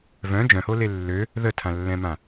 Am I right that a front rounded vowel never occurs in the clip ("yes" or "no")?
no